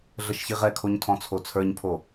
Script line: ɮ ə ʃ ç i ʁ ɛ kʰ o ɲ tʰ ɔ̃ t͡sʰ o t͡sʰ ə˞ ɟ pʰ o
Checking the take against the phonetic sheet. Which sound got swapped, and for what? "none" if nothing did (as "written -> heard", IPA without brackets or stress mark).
ɟ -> ɲ